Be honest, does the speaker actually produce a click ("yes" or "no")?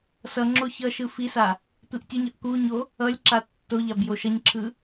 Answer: yes